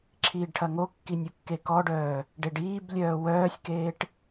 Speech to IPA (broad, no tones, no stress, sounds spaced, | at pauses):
ǁʰ iː ɖ ʈʰ ɐ ŋ o kː i nʲ u kː e k ɔ ɖ œː | ɖ e ɖ iː b lʲ œː w œː sʲ k eː ʈ